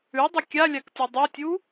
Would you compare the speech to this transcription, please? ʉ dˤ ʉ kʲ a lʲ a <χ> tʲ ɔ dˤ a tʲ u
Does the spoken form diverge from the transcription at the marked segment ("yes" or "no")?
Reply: yes